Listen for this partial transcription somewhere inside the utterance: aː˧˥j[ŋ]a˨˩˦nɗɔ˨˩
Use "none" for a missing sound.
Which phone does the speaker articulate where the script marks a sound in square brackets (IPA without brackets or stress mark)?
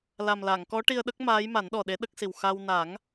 m